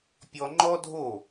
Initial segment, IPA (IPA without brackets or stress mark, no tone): pʲ